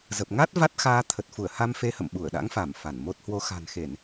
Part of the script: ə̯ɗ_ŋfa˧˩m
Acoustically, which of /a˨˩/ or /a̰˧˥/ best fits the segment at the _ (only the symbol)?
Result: a̰˧˥